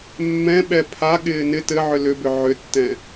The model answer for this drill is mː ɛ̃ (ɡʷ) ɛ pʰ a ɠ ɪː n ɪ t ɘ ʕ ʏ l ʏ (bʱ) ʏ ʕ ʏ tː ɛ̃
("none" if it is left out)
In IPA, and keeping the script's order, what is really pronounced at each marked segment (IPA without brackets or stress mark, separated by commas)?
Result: ɓ, b